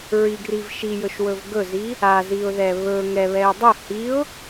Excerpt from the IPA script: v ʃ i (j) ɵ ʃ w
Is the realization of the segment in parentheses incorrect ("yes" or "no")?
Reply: no